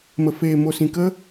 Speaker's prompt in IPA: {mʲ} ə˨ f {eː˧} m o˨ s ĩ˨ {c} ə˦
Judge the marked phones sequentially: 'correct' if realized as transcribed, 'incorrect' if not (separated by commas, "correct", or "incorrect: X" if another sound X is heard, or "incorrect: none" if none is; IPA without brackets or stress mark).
incorrect: m, incorrect: eː˨, incorrect: k